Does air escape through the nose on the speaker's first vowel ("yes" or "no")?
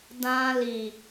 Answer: yes